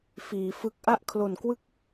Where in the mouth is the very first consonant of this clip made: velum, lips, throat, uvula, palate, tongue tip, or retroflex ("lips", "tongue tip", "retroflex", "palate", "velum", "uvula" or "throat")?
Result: lips